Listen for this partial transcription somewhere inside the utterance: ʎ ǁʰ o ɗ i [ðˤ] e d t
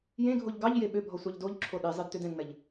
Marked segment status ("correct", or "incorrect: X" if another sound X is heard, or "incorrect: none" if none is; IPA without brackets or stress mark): incorrect: zˤ